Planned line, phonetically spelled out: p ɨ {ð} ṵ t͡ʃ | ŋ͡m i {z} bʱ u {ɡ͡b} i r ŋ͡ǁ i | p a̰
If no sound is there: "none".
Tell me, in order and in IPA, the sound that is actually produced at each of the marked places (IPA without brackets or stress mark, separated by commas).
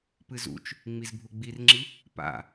z, z, ɡ͡b